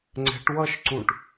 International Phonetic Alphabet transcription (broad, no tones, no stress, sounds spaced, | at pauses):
ŋ͡ǀ ɛ̤ ʈ w ʌ ʃ ǀ ũ ʈ